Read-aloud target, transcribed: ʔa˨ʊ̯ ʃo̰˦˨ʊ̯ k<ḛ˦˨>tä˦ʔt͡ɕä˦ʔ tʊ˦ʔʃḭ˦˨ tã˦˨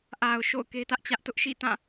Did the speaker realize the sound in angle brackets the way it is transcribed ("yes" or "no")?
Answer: no